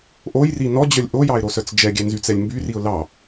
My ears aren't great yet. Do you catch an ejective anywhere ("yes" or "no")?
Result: no